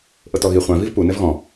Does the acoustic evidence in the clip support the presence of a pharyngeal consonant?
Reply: no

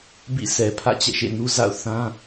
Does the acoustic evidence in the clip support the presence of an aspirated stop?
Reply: yes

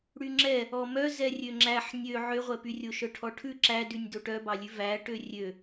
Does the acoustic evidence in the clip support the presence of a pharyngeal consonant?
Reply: yes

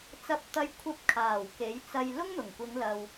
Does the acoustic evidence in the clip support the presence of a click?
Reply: no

